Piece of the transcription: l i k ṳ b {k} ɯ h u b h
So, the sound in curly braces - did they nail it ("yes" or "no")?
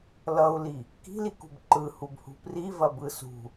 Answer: no